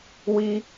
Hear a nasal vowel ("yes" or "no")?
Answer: no